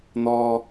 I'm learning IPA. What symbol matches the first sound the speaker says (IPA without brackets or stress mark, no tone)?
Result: n̪